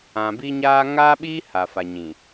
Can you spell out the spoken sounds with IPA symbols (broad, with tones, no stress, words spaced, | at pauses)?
ã˨bi˦ɲaː˦ ŋaː˦ɓiː˦ ha˨fa˨ɲĩ˨